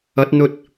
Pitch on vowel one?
rising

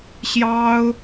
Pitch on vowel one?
high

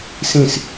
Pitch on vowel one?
falling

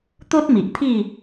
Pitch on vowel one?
high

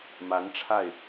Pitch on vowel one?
rising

